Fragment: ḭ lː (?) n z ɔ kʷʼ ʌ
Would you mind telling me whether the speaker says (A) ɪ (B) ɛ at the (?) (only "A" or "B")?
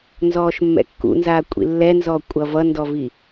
B